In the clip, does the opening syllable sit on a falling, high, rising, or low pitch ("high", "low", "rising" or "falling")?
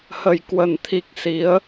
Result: low